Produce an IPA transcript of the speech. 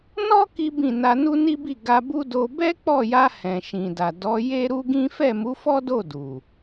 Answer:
n ɔ˦ k i˦ b ĩ˦˨ n a˧ n u˦ n i˦ b i˦˨ ɡ a˧ b u˦ d o˧ b ɛ˦ k͡p ɔ˦˨ j a˧ h ɛ̃˨ ʃ ĩ˨ d a˨ d ɔ˨˦ j e˦ ɾ u˦ ɡ ĩ˦ f ɛ˦˨ m u˨˦ f ɔ˦ d o˦˨ d u˨

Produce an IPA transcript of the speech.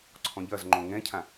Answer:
ǀʰ ɔ̃ ʎ ɐ z ŋ͡ǃ õ ŋ ɛ̃ cʰ ã

